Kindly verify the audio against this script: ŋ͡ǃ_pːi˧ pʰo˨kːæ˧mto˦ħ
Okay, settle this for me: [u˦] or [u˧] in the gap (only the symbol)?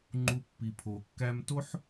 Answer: u˦